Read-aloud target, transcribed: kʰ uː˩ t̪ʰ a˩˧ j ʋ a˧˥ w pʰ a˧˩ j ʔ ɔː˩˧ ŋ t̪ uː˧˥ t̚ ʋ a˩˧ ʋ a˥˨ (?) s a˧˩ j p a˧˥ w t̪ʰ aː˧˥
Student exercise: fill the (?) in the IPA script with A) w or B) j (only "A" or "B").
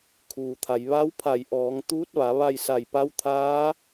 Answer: B